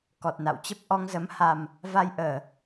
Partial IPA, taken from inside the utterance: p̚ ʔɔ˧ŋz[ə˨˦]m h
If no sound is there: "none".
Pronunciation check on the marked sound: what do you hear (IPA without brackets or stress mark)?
ə˨˦